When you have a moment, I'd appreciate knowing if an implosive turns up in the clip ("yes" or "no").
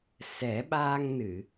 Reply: yes